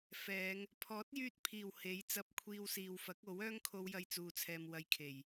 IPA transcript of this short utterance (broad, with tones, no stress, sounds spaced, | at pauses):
f ɛː˨˧ ŋ | pʰ ɔː˨˥ t̚ j yː˧ t̚ pʰ iː˨˩ w h e˨˥ j t͡s ɐ˧ p̚ kʷʰ iː˧ w s iː˨ w f ɐ˨˥ k̚ o˨˥ w œː˥ ŋ kʰ o˥ w j ɐ˥ j t͡s uː˧ t͡sʰ ɛː˧ m w ɐ˧ j kʰ e˨˩ j